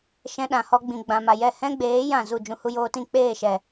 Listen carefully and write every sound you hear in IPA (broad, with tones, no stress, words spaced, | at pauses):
ʃɛ̃˧ɗã˨hɔ˧ ɡ͡bĩ˨ɡ͡bã˨ma˨jɛ˦˨ hɛ̃˦ɡ͡beː˨˦ jã˦˨zu˦˨ d͡ʒũ˧hu˧joː˧tĩ˦˨ k͡peː˦˨ʃɛ˨